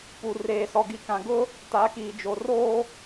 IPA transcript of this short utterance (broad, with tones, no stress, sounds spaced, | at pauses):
p u˨ r eː˨ s ɔ˨ ɡ i˨ k ã˨ ɡ ʊ˦ | t a˨˦ k iː˨ d͡ʒ o˨ r oː˦